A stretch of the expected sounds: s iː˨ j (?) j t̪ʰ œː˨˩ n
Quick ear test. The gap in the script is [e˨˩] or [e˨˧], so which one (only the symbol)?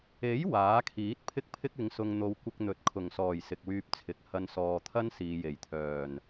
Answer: e˨˩